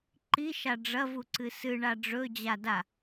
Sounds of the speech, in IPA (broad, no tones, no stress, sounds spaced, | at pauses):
ǃ i ʃ a ɖ͡ʐ ɐ v u ǀ ɨ s ɨ ɳ a ɖ͡ʐ ɵ d͡ʑ a d a